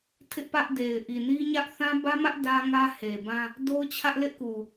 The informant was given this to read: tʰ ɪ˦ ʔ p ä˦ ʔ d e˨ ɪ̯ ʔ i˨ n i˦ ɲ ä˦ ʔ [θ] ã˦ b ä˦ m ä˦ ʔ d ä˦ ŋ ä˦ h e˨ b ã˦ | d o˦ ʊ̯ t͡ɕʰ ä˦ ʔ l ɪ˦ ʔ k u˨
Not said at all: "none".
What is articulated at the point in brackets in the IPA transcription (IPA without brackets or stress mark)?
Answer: θ